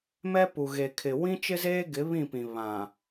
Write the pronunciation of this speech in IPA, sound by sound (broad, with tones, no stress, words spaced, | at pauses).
mɛ˦pu˨ɣe˨kʰɪ˨ wĩ˦t͡ʃɪ˦zeː˦ɡɪ˨˦ βĩ˦˨pĩ˨ βã˨